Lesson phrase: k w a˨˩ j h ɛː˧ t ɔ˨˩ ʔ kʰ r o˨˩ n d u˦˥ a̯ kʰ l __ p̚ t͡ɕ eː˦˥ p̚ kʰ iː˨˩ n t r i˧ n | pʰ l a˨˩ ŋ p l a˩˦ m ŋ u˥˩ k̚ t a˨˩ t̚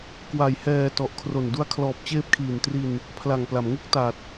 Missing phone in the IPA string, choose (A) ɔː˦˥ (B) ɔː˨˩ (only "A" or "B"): B